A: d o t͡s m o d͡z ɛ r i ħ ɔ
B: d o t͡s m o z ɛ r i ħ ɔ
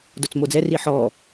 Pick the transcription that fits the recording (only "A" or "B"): A